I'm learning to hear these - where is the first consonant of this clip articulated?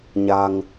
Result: palate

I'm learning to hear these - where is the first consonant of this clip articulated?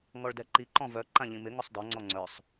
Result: velum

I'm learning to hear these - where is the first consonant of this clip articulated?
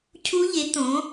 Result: palate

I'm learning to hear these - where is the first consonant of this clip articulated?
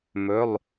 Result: lips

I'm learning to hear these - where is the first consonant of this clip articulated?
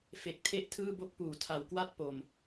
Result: lips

